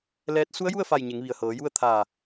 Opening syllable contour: rising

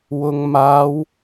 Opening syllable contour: low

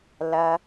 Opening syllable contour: high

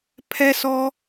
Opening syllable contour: high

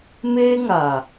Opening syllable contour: high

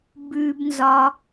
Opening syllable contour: low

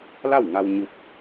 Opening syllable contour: falling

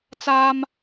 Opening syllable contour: high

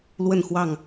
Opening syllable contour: falling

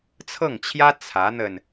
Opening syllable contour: falling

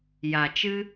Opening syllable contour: low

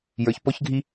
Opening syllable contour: low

